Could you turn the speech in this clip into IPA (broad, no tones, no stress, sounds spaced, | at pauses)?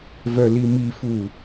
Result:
v œ l i m i f u